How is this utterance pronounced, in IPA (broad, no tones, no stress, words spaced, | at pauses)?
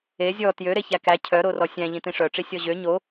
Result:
e zʲɔ tjø ɾeçækæ cʰœɾorɔ sʲæ̃ ʎĩtĩʂœʈ͡ʂi sʲɔʑø ɲo